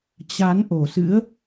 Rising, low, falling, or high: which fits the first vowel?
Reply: rising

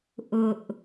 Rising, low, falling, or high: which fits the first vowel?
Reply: low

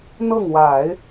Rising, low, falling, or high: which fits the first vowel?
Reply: falling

